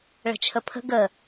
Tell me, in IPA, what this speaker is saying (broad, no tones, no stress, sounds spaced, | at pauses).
ɭ ə̤ t͡ʃʰ ə pʰ ə̤ ɡ ə